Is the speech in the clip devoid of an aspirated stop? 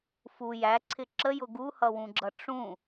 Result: no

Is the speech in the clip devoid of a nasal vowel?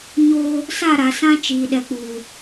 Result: no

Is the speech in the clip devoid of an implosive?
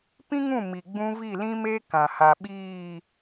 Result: no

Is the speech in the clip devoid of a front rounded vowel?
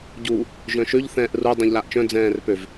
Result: no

